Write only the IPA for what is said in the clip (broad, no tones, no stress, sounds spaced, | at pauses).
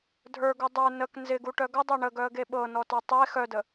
dʱ ə˞ ɡ u dˤ ə˞ n ə k n z ɪ ɡ u ʈ œ ɡ ə dˤ e ɳ ə ɡ œ ə̯ ɡ e ɓ ɤ n ɔ t ə˞ tˤ e x œ d ə